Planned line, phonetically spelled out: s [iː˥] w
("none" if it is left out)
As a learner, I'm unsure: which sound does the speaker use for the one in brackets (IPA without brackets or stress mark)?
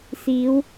iː˨˧